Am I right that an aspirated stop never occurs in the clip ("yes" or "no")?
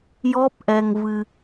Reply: yes